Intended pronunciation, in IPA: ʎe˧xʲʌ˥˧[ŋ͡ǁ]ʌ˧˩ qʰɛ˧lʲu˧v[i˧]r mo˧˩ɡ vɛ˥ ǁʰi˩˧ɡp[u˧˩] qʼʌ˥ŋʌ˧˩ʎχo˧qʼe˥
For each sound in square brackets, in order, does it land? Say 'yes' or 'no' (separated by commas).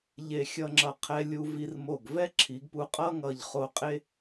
yes, yes, no